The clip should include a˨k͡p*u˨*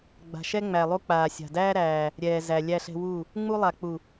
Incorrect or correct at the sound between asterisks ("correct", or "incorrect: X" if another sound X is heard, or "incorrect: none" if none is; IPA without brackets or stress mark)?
correct